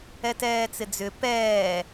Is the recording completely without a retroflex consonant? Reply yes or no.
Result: yes